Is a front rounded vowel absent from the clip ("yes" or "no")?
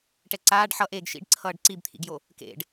yes